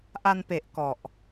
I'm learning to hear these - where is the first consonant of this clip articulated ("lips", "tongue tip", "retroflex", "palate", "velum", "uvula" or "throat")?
throat